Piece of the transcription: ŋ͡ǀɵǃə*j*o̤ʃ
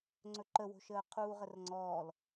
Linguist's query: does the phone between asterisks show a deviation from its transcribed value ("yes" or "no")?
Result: yes